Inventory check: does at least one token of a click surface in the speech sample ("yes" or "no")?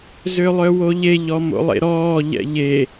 no